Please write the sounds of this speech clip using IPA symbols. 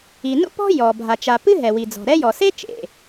i˩ n ṵ˥ p ɔ̤˥ j ɔ˩ bʱ a˩ t͡ʃ a˩ p ɨ˥ ɦ ɛ˩ w i˩ d͡z ɔ̤˩ ɾ ɛ˥ j ɔ˩ s e˥ t͡ʃ ḛ˩

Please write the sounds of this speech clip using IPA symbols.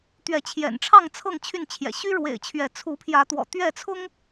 t̪ ɥ ɛ˨˦ t͡ɕʰ j ɛ̰˨˩ n ʈ͡ʂʰ ɑ˥˨ ŋ t͡sʰ ɤ˥˨ ŋ t͡ɕʰ y˥˨ n t͡ɕʰ j ɛ̰˨˩ ɕ y˦ ɻ w ḛ˨˩ ɪ̯ t͡ɕʰ ɥ ɛ˨˦ t͡sʰ u˨˦ pʰ j ä˨˦ t̪ w ɔ̰˨˩ t̪ ɥ ɛ˥˨ t͡sʰ ʊ˦ ŋ

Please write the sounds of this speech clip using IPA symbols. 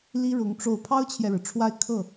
l i˥ ɻ ʊ˧˥ ŋ ʈ͡ʂ o˥˩ ʊ̯ pʰ ɑ˥ ʊ̯ t͡ɕʰ j ɛ˨ ɻ ɻ̩˩ ʈ͡ʂʰ w a˥˧ ɪ̯ kʰ ɤ˥˩

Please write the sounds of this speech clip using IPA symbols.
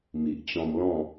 m i˨ ʔ t͡ɕ ɔ̃˧ m l ɔ̃˥˧

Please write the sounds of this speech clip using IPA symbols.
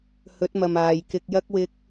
h ɵ˨˥ t̚ m ɐ˨ m aː˨ j k ɪ˧ k̚ j ɐ˥ k̚ w ɪ˥ k̚

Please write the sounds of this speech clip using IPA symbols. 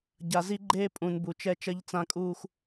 ɟ a˨ z i˦ ɡ͡ǃ eː˦ pʼ ũ˨ n b u˨ t͡ʃ ɛ˦ t͡ʃ ɐ˦ ʎ t͡s ã˦ kʼ uː˦ x

